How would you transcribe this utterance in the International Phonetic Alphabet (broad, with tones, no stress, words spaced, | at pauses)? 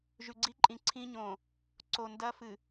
ʒʉ˨ɡ͡ǀi˦ǃʼĩ˨ ǀʰĩ˦ɲõ˨ | ǀo˨ndɐ˦fɨ˨